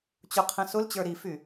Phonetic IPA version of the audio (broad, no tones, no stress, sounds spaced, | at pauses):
t͡ɕ ʊ qʰ ɛ̃ s ʊ l t͡ɕ ə˞ ɾ i f y